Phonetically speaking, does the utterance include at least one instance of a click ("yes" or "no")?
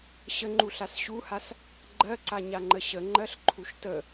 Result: yes